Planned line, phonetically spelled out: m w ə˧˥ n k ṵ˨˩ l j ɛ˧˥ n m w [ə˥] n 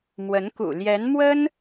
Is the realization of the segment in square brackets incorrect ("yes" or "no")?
no